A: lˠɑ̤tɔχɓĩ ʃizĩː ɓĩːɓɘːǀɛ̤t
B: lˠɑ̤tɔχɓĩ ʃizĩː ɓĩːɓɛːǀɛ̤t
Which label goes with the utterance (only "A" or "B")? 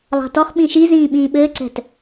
A